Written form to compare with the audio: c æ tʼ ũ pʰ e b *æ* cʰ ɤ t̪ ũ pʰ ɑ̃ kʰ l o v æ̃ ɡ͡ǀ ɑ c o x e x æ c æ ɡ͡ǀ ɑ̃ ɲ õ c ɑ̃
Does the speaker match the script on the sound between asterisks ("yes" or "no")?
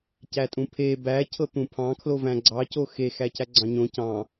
yes